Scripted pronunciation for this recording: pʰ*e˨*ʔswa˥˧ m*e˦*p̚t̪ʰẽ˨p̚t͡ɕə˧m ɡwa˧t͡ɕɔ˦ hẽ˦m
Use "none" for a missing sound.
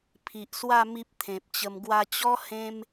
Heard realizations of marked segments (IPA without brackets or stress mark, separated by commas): i˨, i˦